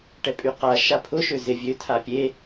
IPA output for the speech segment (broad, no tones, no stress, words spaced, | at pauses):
ʈɛpʼyqa ʃapʰʊ ʃøzɪ vʲø tʰapʲe